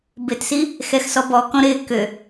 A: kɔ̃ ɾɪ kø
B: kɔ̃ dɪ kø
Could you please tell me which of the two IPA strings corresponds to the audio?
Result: A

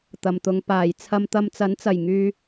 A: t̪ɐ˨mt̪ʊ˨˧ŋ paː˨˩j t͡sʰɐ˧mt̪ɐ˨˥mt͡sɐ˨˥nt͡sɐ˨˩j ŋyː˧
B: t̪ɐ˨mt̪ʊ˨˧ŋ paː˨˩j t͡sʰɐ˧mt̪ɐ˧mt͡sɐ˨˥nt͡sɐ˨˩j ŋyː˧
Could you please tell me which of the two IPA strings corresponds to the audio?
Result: B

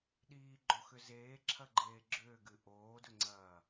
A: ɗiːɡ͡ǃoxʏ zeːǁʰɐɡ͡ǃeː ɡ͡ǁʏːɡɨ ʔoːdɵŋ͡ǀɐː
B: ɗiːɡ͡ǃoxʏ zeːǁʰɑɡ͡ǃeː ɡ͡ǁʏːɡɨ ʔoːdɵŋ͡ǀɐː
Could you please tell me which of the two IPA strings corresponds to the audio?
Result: A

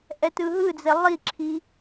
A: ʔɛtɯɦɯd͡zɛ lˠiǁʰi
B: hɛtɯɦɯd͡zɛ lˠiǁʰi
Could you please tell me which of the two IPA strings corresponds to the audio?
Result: A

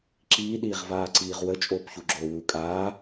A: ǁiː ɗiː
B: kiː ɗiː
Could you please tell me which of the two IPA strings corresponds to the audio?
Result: A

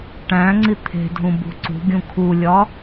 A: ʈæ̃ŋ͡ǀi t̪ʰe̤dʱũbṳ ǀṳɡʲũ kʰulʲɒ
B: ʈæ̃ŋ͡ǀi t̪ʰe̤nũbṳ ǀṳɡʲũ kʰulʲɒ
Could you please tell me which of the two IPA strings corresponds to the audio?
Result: A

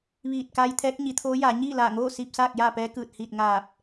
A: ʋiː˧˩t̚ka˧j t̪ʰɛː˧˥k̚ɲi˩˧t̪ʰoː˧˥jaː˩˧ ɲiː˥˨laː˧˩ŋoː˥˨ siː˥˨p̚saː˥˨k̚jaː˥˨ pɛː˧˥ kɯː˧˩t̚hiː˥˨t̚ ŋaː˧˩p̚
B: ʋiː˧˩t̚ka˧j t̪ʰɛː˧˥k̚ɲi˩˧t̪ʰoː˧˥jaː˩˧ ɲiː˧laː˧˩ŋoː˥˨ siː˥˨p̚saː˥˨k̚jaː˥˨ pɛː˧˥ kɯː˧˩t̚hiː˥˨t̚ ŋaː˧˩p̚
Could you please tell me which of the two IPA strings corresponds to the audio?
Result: A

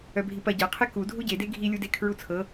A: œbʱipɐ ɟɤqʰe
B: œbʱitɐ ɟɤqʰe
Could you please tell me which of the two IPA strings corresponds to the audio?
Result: A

